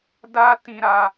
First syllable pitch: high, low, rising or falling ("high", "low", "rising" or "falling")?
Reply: high